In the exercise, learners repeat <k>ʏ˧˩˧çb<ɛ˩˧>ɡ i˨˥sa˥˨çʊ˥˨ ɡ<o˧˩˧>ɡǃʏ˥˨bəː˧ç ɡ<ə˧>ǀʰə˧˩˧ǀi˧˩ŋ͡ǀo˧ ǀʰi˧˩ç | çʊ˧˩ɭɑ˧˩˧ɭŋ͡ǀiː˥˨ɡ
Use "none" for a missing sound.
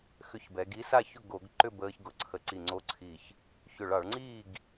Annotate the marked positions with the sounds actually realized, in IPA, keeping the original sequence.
x, ɛ˩˧, o˧˩˧, ʊ˧

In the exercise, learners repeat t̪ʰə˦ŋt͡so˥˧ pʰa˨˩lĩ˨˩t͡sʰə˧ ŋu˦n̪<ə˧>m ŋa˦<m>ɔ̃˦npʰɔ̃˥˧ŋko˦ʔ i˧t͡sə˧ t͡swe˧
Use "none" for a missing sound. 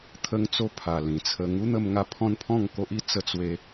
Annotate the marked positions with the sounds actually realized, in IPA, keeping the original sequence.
ə˧, pʰ

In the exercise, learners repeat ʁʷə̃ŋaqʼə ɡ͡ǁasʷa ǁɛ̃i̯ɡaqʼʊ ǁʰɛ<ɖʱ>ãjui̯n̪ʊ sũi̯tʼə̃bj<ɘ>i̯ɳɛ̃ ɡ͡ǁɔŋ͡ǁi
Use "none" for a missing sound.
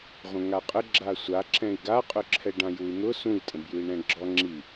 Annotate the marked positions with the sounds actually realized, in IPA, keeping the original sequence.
ɖ, ʉ

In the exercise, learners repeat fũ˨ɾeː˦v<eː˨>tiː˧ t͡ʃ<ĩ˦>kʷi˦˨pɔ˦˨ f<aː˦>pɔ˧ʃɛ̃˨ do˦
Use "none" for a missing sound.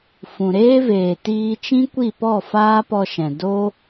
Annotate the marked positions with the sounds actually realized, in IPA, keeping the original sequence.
eː˨, ĩ˦, aː˦

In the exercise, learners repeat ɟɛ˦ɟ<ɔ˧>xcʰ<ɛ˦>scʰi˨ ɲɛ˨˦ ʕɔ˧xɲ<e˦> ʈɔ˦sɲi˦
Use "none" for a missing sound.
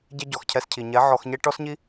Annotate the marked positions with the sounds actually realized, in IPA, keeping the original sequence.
ɔ˨, ɛ˧, e˦

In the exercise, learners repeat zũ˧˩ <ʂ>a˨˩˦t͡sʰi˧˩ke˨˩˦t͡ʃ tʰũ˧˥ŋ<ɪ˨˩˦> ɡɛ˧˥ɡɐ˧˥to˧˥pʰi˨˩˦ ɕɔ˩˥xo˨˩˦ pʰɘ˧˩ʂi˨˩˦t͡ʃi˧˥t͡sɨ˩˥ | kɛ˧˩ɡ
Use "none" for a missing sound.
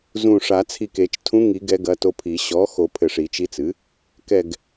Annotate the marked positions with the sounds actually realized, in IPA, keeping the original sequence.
ʂ, i˨˩˦

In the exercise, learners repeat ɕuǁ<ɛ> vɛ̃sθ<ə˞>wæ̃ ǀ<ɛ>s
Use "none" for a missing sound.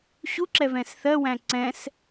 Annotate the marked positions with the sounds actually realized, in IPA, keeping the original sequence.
ɛ, ɜ, ɛ̃

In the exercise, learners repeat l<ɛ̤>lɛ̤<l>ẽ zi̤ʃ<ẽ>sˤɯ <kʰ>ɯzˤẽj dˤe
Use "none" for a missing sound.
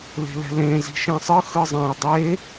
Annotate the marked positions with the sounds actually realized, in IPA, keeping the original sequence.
e̤, l, ẽ, x

